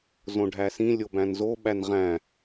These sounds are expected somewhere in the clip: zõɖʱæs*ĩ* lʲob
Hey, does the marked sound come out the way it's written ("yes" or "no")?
yes